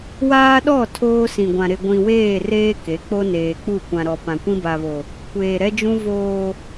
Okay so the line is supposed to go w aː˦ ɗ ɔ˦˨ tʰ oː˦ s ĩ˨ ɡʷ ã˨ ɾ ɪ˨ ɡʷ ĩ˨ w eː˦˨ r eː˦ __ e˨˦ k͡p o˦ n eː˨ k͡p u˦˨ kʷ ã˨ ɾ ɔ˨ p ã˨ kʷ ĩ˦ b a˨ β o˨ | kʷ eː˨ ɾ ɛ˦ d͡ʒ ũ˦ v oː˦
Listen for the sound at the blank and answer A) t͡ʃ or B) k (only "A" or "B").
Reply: B